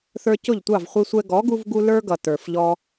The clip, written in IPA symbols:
θə˞˧cʊ˦˨ʎtʷɑ˦˨v χʷi˧ sʷɛ˧ ɡɔ˨˦ɡu˧vɡu˧ lə˞˦ɡʌ˨ tə˞˨fʎɔ˦

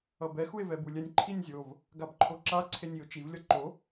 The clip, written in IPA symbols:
ʌbɛ xue̯vɛbulʲɛnʲ ǃʰinʲzʲov | ɡabǃʰoǁa ǀʰenʲio̯t͡ʃiv lʲʌǃo

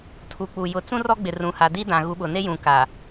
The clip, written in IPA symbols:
tʰu˨k͡pu˨ jʊ˨t͡sũ˦ rɔ˦ɡ͡bɪ˨ rũ˨ha˨di˦ dã˨ɣu˨˦ɓʊ˨ ne˦ jũ˨ka˨

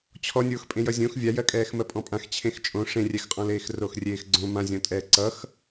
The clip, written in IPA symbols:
t͡ɕʰɔnʲoːx pʼẽjʌzʲõx vʲajɜkʼɛːx mɜpʼɔ̃pʼãx t͡ɕʰẽxt͡ʃʼõ ʂẽrʲɛxqʼɔ̃leːx roxrʲeːxɡ͡ǀõ mãzʲɔ̃tʼɛː ǀʌx

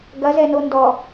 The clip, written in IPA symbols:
ɡɐzɛnondɔ

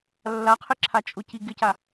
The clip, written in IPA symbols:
lːaqʰɪǁʰa t͡ʃʼʊci ɡɪca

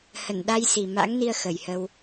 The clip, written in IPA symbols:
hə˧˩nɗa˧j si˨˩ma̰˧˥ŋni˧ə̯ xə˨˩jhə˧w

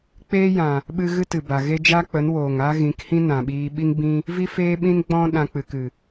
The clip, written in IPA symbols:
k͡peː˦jã˨ | ɓɨ˧ ɣɨ˦tɨ˨ba˨ɣe˦ d͡ʒa˦k͡pə˨˦n woː˨ŋa˦ɣĩ˨˦k hĩ˦nã˨ɓiː˧ɓi˦ŋ bĩ˦ | vi˦feː˦ɓĩ˦n ɡ͡bɔ̃˦ ɗã˧k͡pɨ˨kɨ˨

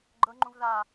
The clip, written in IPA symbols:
ɡ͡ǃɤŋ͡ǃũv ða

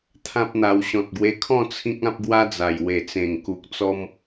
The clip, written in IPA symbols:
t̪ʰã˦p̚n̪a˧w ɕɔ̃˨t̚ɡwe˧kʰɔ̃˥˧ t͡sʰĩ˦k̚ã˦p̚ɡwa˦d͡za˨˩j we˨˩t͡sẽ˨˩ŋku˨k̚t͡sɔ˧m

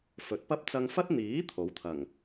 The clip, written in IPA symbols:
fɵ˨˥t̚pɐ˥p̚ t͡sɐ˧ŋfɐ˥t̚ n̪iː˨˥ t̪ʰo˨˥wt̪ʰɐ˨˩ŋ

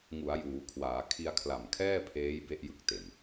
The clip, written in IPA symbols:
ŋu˩˦a̯juː˩˦kʰwaː˩˦ kʰi˧a̯kʰla˨˩mkʰɛː˥˩pʰeː˦˥j be˥˩ʔjɯ˥˩k̚te˨˩n

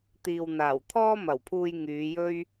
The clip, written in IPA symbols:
t̪iː˨wn̪aː˨˩w t̪ʰɔː˥mɐ˨˩wpʰuː˧j ŋyː˨˧jɵ˥ɥ

